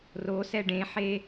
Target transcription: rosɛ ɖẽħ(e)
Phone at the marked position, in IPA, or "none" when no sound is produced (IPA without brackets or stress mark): e